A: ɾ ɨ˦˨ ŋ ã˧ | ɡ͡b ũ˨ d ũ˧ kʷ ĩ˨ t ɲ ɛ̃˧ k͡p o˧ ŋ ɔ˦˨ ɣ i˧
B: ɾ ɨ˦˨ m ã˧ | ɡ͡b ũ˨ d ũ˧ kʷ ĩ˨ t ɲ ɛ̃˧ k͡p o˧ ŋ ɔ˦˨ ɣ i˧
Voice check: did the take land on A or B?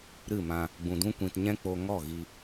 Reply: B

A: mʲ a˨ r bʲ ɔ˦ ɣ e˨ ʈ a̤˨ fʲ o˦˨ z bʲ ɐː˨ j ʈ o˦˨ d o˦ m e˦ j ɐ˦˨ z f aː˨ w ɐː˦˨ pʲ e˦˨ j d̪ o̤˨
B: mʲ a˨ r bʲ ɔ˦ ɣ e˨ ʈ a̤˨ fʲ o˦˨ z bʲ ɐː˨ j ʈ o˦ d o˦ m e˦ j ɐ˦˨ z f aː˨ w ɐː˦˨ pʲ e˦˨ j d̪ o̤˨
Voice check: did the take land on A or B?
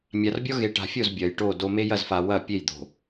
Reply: A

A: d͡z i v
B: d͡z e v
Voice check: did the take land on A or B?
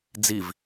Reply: A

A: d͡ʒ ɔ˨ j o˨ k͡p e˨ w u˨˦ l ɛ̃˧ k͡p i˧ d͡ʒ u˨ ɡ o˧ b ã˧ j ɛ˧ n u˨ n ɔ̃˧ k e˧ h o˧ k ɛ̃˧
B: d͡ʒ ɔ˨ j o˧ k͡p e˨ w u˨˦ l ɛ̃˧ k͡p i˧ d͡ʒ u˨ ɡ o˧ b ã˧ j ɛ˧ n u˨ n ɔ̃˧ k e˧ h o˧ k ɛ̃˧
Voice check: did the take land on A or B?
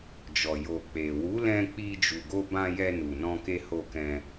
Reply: A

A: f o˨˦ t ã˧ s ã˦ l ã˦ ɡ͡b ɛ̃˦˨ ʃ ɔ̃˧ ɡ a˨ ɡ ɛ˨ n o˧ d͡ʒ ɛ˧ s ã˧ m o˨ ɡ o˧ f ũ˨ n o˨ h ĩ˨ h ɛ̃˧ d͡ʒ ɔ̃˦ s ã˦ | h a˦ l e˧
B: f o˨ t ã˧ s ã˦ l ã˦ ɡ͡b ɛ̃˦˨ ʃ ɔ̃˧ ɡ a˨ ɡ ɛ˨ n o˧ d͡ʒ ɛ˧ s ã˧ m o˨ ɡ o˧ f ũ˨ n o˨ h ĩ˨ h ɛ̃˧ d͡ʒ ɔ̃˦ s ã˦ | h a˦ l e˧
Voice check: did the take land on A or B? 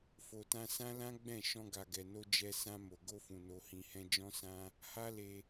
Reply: B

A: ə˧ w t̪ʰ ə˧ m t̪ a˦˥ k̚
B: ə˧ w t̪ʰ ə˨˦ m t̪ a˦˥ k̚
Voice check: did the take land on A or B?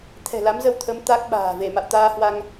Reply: B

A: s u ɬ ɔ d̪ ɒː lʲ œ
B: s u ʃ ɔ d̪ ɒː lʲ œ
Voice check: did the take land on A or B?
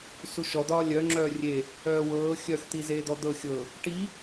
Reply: B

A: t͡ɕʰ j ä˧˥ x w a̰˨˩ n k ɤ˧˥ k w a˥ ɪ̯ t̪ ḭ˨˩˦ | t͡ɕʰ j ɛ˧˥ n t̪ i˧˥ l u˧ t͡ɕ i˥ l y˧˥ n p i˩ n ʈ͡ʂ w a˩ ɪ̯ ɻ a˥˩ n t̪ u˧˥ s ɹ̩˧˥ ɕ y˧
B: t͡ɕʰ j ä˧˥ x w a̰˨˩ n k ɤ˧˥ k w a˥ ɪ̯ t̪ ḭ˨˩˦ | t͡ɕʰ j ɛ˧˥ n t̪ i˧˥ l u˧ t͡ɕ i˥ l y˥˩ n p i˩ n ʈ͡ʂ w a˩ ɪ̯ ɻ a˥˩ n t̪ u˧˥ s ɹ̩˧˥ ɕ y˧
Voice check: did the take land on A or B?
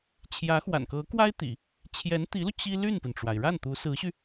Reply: B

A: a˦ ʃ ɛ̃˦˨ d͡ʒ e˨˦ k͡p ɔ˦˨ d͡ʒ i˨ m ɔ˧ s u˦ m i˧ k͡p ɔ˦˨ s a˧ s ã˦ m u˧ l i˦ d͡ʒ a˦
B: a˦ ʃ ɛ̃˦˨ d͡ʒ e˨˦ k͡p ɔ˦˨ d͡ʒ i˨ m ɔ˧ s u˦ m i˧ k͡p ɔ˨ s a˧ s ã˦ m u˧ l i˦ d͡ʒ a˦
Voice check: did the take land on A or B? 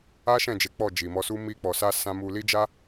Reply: B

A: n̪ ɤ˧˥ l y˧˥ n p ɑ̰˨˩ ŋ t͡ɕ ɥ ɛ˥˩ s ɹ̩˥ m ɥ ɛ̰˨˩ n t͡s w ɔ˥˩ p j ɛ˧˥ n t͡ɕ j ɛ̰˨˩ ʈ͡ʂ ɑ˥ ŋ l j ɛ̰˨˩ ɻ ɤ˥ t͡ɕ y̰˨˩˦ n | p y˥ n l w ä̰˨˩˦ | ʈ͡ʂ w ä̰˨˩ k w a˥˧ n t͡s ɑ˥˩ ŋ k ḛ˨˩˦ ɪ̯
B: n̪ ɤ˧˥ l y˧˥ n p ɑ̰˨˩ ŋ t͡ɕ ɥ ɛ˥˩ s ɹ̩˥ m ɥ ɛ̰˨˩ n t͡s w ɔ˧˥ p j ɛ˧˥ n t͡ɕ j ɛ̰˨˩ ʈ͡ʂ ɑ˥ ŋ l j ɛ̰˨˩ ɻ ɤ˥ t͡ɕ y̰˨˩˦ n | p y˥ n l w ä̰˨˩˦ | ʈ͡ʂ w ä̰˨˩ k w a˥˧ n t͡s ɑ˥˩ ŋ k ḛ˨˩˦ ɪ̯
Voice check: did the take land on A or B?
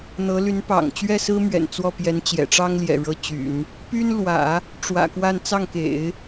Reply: A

